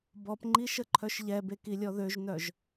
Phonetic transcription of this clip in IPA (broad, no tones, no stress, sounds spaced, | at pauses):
b ɔ p ŋ͡ǃ i ʃ ə ǃʰ œ ʃ ʎ ɛ b e k i lʲ ɔ ð ø ʒ n œ ʒ